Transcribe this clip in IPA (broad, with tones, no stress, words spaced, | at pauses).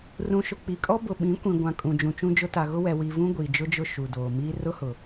rũ˨ ʃʊ˨k͡pi˨kʼɔ˦ bʊ˨ɓĩ˨˦ kʷĩ˨ ɡʷã˨kʼũ˨d͡ʒũ˨t͡ʃũ˦ d͡ʒʊ˦ ta˨ɣʊ˦wɛ˨ wi˨vũ˦ ɡʷiː˨d͡ʒʊ˦d͡ʒʊ˦ ʃu˨doː˨miː˦ rʊ˦hʊ˨